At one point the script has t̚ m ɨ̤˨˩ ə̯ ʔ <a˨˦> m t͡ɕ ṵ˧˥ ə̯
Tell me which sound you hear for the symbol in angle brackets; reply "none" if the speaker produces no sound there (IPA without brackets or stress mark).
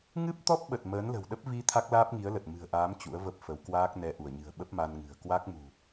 aː˨˦